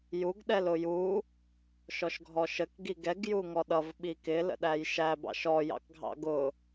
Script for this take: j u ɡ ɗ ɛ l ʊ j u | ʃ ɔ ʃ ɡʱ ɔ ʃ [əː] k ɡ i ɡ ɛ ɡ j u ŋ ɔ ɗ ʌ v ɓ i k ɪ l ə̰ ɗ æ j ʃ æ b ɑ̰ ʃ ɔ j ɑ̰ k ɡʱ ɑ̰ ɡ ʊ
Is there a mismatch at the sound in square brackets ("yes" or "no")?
yes